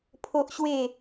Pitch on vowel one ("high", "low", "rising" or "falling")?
high